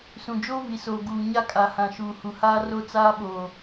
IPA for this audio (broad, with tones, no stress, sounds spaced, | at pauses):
s ũ˨ d͡ʒ oː˦ v i˨ s oː˨ ɡ uː˨ ɲ a˦ kʼ a˨ h ã˨ ʃ uː˨ h u˨ h aː˦ r o˦ t͡s aː˦ ɓ oː˨